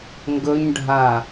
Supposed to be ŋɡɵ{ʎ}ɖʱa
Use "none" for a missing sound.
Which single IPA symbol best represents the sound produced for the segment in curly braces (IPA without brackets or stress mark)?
ɲ